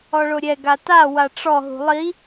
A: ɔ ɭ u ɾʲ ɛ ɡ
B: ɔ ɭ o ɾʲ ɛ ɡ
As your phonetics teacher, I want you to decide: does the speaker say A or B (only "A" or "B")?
B